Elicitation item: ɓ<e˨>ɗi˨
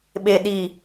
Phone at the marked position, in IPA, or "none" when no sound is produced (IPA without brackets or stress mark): e˨